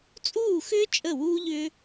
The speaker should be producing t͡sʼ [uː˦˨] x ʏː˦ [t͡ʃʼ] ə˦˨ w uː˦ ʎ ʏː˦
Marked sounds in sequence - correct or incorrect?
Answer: correct, correct

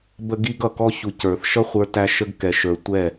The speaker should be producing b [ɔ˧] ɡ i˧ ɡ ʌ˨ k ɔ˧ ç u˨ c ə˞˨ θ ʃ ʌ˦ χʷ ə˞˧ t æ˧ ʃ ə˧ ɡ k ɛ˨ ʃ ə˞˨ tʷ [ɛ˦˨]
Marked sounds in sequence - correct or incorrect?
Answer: incorrect: ə˧, correct

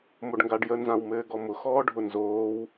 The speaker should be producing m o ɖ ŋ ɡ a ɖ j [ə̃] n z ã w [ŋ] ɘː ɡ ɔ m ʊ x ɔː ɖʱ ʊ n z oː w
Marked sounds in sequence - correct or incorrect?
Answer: incorrect: ə, incorrect: m

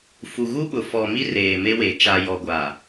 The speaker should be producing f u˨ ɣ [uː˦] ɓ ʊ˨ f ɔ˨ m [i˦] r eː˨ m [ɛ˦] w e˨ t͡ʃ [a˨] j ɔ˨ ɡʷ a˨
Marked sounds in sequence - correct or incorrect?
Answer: incorrect: u˦, correct, incorrect: e˦, correct

